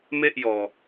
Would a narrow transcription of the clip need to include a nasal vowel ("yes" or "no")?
no